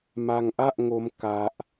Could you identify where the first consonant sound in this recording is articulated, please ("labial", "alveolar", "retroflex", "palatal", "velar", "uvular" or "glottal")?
labial